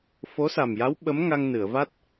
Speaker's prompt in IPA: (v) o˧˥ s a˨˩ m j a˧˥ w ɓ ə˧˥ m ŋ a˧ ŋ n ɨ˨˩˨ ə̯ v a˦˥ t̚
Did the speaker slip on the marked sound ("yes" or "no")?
yes